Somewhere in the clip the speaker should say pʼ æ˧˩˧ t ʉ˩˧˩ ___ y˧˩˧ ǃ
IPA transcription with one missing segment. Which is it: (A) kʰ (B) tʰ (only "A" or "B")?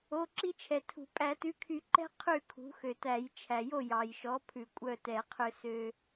A